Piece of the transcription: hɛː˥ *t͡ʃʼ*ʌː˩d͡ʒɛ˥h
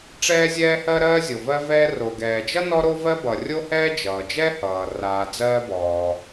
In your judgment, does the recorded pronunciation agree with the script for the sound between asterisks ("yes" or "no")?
no